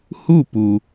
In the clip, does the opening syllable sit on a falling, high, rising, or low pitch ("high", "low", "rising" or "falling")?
falling